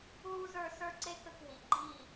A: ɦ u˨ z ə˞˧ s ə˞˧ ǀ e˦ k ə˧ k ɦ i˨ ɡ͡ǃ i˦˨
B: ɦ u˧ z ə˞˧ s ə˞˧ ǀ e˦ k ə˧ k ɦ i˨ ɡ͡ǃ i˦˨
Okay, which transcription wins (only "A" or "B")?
B